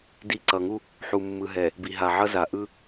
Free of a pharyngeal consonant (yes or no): no